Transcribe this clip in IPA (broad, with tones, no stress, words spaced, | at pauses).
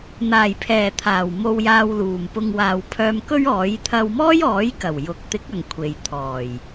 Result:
n̪aː˨˩jpʰɛː˨˩ t̪ʰaː˨˩wmo˧w jaː˧wluː˨˩mpʊ˧ŋ waː˨wpʰœː˧mkɵ˥ɥɔː˨˥j t̪ʰɐ˧wmɔː˥jɔː˨˥j kɐ˨˩w jʊ˨˥k̚t̪ɪ˨˥k̚ ɐ˨ŋkʷʰe˨jt̪ʰɔː˨˩j